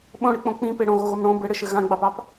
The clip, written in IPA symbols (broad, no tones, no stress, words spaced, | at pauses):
ɓõɽɨk͡põ k͡pĩpe ɽõɣoɣom ɽõ bɘɽɘʃɘ ɣãɡ͡bɑpɑp